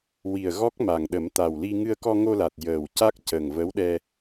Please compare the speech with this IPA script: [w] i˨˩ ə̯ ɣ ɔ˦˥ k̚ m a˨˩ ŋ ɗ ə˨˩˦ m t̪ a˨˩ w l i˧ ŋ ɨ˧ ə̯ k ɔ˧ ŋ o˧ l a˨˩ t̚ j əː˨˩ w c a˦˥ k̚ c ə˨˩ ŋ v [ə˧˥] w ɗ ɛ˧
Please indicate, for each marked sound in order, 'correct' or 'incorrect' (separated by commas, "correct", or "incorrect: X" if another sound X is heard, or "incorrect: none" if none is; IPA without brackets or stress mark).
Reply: correct, correct